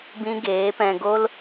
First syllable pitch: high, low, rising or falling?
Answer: high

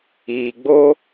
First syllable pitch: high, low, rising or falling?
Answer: low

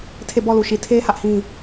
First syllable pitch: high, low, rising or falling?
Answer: falling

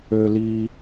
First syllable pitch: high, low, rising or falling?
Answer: high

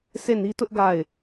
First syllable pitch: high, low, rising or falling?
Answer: falling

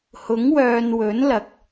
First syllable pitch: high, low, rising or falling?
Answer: rising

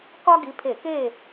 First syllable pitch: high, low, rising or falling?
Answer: high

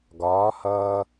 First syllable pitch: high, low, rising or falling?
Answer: rising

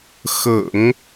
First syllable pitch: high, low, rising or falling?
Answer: low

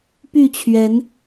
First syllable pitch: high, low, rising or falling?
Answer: falling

